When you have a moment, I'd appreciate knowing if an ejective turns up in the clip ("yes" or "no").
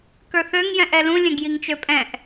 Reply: yes